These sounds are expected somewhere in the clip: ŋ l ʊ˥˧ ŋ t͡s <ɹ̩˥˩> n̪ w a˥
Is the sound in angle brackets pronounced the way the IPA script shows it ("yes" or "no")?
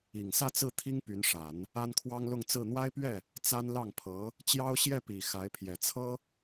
yes